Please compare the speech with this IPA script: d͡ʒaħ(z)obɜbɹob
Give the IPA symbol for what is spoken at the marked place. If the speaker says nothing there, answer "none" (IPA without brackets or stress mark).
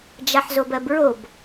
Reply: z